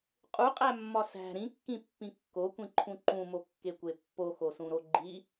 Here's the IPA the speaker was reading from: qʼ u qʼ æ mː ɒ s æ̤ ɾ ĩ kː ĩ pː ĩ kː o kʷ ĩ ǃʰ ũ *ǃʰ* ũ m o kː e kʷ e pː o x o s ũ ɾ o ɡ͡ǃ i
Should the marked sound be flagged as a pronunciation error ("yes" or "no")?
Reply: yes